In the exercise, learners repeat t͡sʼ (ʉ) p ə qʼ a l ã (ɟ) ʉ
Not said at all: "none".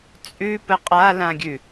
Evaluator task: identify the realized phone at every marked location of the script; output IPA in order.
ʉ, ɡʲ

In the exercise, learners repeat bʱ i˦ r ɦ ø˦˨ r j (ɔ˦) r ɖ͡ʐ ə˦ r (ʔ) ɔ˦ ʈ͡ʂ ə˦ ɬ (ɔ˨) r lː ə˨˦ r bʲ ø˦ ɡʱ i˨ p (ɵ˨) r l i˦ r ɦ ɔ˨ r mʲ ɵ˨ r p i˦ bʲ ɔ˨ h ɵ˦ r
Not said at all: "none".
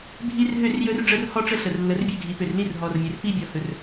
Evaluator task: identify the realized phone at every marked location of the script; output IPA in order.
ɵ˦, h, ə˨, ø˨

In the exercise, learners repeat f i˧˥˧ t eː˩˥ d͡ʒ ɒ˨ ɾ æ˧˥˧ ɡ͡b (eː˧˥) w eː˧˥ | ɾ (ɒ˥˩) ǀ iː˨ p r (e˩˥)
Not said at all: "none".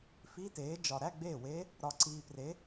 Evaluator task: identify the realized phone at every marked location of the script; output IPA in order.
eː˥˩, ɒ˨, e˩˥

